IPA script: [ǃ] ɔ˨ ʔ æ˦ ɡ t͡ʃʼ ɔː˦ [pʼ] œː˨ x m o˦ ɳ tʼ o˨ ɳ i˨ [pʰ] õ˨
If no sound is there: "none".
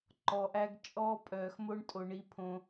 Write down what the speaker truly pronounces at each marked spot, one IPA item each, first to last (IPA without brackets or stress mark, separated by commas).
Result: ǃ, pʼ, pʰ